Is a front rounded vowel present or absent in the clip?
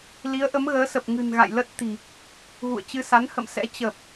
absent